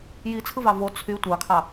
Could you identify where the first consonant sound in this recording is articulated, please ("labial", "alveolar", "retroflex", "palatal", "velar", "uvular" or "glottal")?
palatal